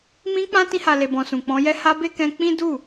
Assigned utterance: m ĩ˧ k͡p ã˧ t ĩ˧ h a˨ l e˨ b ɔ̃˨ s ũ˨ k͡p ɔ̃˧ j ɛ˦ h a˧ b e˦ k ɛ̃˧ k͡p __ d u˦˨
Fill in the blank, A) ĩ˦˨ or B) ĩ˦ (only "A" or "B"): B